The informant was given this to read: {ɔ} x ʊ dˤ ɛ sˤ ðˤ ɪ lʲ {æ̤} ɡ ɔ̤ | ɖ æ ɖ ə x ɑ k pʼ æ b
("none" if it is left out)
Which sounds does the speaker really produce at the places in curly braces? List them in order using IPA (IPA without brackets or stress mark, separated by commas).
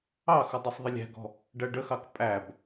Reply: ɑ, æ̤